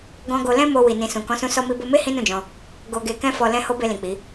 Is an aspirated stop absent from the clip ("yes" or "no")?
yes